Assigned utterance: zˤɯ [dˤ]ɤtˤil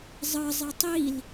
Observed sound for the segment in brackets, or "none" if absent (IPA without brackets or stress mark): zˤ